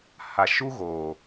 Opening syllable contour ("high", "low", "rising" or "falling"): low